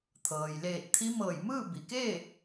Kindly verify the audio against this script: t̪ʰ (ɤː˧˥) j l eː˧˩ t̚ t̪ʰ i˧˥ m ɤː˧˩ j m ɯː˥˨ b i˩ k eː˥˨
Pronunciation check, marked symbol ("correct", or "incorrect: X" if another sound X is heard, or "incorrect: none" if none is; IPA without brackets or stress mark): incorrect: ɤː˩